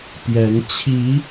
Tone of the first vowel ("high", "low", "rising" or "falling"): rising